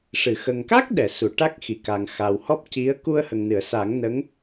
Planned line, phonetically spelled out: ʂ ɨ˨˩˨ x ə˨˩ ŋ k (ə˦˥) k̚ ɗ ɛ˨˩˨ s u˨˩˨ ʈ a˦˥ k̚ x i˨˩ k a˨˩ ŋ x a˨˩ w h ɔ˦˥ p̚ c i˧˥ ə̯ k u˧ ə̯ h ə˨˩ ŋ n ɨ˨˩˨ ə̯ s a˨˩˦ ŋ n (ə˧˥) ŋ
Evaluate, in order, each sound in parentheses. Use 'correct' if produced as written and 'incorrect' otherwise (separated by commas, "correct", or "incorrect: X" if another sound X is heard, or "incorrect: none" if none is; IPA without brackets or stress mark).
incorrect: a˦˥, correct